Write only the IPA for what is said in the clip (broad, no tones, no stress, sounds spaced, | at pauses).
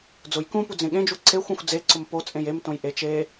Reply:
d͡z ʊ j k ũ p u d͡z ẽ ɠ ẽ d͡ʒ u ǀ e xʷ õ xʷ d͡z e ǀ ʊ m p o t͡sʼ ẽ j e m t õ j ʔ e t͡ʃ e